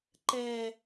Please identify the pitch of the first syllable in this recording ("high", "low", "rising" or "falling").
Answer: low